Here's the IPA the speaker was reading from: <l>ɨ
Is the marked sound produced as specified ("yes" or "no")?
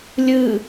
no